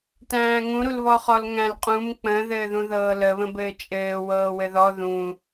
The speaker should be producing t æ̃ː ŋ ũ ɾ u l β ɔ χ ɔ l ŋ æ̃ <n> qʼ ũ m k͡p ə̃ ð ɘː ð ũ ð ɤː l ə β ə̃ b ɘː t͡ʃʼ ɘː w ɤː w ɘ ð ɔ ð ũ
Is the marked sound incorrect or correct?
incorrect